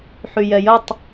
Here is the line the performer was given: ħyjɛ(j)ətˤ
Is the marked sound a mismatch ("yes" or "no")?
no